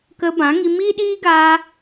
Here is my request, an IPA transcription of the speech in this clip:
k ə˧ b ã˨˦ ŋ i˧ m iː˦ ɗ iː˦ ɡ a˧

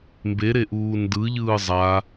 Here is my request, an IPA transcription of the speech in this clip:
m b e ɾ e ʔ uː n d ɯ ʎ ɯː zˤ a

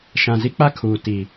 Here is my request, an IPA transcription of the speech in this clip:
ʃ ã˨ z i˦ k͡p a˦ kʰ uː˨ t i˨

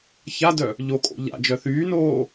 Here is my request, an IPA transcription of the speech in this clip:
ç a d œ | ʎ o kʼ o̰ ʎ a̰ d͡ʒ œ θ yː n oː

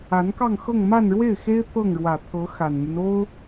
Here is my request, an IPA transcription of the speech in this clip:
a˧˥ n k ɑ˥˧ ŋ x ɤ˥˧ ŋ m a˥˧ n ɻ w e˥˩ ɪ̯ x e˥ ɪ̯ t̪ ɤ˥˩ ŋ ɻ w ä˨˩ t̪ʰ ɤ˧˥ x a˨˩ n m y˦ n o˥ ʊ̯

